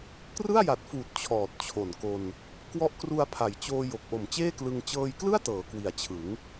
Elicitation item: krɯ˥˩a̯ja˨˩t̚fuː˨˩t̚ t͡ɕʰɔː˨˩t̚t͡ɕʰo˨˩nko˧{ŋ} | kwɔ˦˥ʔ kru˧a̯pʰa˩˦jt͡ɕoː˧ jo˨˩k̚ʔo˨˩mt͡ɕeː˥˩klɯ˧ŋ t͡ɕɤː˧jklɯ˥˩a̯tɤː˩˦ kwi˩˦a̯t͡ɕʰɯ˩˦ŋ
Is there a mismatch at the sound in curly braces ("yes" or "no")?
yes